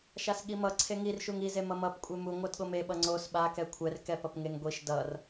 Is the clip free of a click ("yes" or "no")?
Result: no